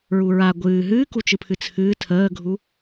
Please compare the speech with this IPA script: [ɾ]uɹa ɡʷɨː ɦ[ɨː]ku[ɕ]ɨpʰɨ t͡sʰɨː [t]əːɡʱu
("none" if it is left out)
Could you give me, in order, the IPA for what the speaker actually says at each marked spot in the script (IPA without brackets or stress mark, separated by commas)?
ɹ, ɨː, t͡ʃ, tʰ